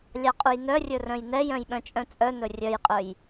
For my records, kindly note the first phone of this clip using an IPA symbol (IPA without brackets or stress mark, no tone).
lʲ